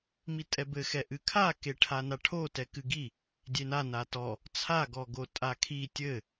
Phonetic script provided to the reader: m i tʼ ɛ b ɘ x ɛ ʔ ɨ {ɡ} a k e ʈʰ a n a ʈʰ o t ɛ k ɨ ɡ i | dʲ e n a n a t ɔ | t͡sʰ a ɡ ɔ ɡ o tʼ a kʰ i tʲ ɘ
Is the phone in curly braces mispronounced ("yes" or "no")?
yes